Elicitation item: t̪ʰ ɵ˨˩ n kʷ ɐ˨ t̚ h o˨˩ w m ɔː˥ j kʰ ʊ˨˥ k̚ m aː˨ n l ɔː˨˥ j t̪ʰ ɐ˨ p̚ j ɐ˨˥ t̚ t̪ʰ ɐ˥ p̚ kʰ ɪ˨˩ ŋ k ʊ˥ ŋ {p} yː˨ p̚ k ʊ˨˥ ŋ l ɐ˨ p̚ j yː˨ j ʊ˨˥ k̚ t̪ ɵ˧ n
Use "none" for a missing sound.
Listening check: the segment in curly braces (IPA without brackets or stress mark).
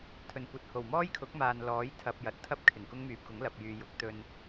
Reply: m